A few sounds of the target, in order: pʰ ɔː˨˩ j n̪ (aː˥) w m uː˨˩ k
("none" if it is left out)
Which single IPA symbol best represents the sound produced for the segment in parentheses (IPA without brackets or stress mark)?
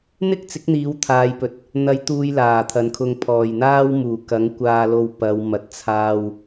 aː˥